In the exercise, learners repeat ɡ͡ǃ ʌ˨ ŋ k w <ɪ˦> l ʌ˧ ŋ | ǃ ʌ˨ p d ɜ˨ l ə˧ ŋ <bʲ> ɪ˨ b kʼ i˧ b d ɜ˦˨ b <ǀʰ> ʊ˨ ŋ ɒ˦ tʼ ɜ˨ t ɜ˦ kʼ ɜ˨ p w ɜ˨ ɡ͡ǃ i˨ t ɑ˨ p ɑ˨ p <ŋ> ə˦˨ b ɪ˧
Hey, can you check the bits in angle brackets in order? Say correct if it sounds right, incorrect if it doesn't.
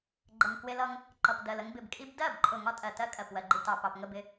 incorrect, incorrect, incorrect, correct

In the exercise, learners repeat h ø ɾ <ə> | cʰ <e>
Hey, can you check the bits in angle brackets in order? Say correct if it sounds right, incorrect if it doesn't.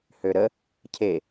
correct, correct

